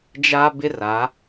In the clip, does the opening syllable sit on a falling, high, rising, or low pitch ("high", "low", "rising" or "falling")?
high